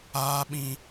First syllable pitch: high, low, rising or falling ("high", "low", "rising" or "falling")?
high